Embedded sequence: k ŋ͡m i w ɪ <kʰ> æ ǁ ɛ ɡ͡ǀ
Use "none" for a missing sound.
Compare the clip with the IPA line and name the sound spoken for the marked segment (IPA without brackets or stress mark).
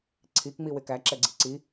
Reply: k